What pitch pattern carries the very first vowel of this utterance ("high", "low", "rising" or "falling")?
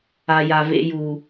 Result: low